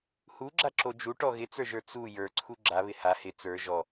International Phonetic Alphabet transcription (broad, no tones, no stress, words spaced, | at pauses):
huɡ͡ǁaǁo d͡ʒuʈɔ ɣɪt͡sə˞ʒə˞ t͡su jə˞ǀʰu ɡ͡ǁaβɪ ha hɪ t͡sə˞ ʒɔ